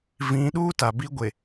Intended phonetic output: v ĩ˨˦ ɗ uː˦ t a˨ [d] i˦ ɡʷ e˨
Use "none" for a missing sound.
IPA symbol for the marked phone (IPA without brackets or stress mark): b